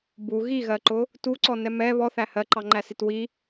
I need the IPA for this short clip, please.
bu ɣiɣɜǃʊ | tuǀɔnɛ mɛ βɔθæ hɜǃɑŋ͡ǃæsit wi

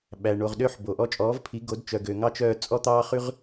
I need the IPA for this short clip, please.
ɓæ˩ ɳo˩ʁɗø˦˨ħ bo˩ʔɔ˦ t͡ʃʼɔː˩˥vpʰi˩˥ɡo˩˥d t͡ʃœ˩ɡø˩ ŋɑ˦t͡ʃœː˦˨ t͡sʼɔ˦t̪ɑː˦χʉ˦ʁ

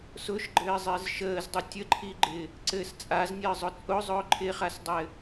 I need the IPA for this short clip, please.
sʊʃɡ͡ǃɘːzˤɪːz ʃəːzdˤu tʲəǃʰiɡ͡ǃɪː | ǀɘs t͡sʼaznʲəːzˤʊ t͡sʼʊzˤʊː ǃʰɪχasdˤɘː

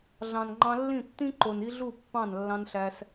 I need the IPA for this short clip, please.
ɮɑ̃˨nŋ͡ǃɑ̃˧lːĩ˦˨ tːĩ˦ǃo˨n i˦ɮu˦˨ pːɑ̃˦˨n lːɑ̃˧nɬæ˧s

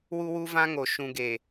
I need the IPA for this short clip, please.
wu˦wu˦vã˦ ŋo˨ ʃũ˨ ɡeː˨

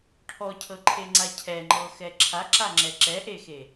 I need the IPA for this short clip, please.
ʈʰɔcʰɤǃʰeŋ͡ǀa cʰɛŋ͡ǃɤxɛ ǁʰaǁaŋ͡ǁɛ ǁɛʔexe

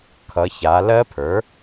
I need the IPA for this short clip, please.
kʰʌ˩˧ça˩˧lɜ˦˥pʰə˞˩˥

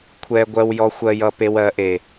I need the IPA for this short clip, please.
kʷʰɛ˦ ɡʷɜ˦wjɔ˦xʷɜ˦ jʌ˦pe˦w ɜ˨˦ʔe˨

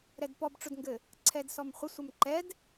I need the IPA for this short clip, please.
ɾɛdpɔbʈ͡ʂʊdŋɡɘ | ǀʰɛdsɔmχʷə sʷəmǃɛd

